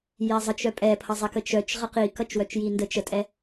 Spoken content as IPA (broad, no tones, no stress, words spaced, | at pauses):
jɛzˤət͡ʃœ pʼɛpʰʌzˤɛk ət͡ʃœt͡ʃ ʁəqi kʌt͡ʃwœt͡ʃjindət͡ʃ ətʼɛ